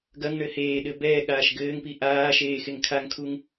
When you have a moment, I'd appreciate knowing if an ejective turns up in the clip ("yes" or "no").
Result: no